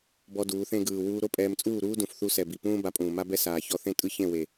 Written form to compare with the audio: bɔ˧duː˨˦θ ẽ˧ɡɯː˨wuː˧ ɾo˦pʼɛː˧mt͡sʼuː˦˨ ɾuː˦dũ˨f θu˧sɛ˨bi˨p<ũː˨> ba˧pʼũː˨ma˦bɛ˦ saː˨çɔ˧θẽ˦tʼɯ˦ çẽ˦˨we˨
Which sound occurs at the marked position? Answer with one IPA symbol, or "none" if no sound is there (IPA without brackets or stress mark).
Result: ũː˦